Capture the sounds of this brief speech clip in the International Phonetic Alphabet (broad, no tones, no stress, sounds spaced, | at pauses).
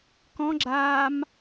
k ɔ̃ ɡ͡ǁ aː m